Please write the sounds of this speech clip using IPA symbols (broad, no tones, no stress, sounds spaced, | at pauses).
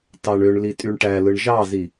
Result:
t ɑ ɳ ø ɳ l i tʼ y ɳ ʈ æ l ɯ ɳ ʒ ɑ z i